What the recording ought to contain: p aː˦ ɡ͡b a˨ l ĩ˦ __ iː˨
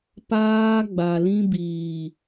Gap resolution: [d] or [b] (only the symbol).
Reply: b